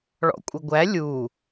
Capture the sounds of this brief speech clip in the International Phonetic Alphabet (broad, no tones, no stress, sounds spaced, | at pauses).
ɭ ɔ̰ kʷʼ ɪ ɡʷ æ lʲ u